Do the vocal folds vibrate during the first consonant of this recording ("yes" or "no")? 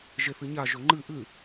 yes